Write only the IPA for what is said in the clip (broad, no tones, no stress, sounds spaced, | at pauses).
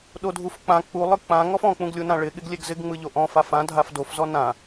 ɗ o dʱ u f k͡p ã k͡p u lˠ ɯ k͡p ã ŋ ɔ f ɔ̃ k͡p ũ ɡ lʲ u n ã ɭ ɪ ɠ ɪ ɡ lʲ e ɡ z ɪ ɡ ŋ͡m ɯ ʎ o ʔ ɔ̃ f a f ã dʱ a f d o f z ɔ n ã